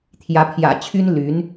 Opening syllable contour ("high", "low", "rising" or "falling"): rising